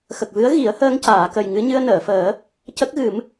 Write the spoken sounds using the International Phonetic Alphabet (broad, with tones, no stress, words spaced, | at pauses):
xə˨˩k̚vɨ˧˥ə̯ ɣi˨˩˦ə̯həː˧ŋcaː˨˩˨kə˨˩j ŋɨ˧ɲɨ˧ə̯nəː˨˩˨fəː˨˩˦ | cə˦˥k̚ɣɨ˨˩˦m